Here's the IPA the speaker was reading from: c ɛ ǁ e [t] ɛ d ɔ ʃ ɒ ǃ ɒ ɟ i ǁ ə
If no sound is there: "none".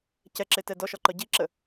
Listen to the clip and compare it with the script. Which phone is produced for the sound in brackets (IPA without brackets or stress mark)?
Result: t